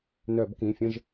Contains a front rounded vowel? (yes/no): yes